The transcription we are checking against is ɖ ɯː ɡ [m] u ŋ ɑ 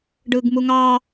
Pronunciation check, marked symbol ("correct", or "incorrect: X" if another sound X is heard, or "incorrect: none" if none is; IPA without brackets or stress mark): correct